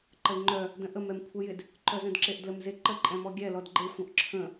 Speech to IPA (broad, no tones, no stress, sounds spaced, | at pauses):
ǃ ə l ŋ͡ǃ œ | d ə̃ ʔ ə m ɛ m kʷʰ ɛ j ɪ d | ǃ œ z œ̃ d ǁ e ʔ d l ə m z e ǃ ə ǃʼ ɛ̃ m ɔ ɡʲ ɛ l ɔ d ɡ͡ǃ e xʷ œ̃ ʔ ǁʰ ə̃